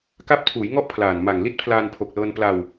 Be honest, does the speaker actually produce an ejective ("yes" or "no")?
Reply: no